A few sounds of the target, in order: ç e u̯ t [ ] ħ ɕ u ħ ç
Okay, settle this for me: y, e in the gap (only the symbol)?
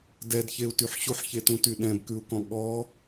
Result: y